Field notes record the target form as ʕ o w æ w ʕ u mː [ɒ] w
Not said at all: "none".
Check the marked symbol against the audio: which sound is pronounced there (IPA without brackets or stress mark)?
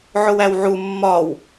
ɒ